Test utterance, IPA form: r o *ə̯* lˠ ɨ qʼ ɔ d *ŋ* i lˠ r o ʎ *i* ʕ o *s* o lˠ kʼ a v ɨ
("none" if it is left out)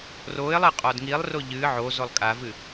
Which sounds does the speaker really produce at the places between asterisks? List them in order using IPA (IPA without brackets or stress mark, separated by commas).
ɪ̯, ŋ, ɨ, z